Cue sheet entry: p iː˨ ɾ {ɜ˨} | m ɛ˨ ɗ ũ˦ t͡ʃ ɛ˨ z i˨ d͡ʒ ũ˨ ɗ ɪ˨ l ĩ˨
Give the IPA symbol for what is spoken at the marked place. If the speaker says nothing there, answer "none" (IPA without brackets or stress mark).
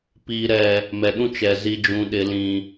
ɛ˨